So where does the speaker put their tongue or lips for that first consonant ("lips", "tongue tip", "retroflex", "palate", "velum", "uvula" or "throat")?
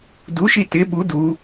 tongue tip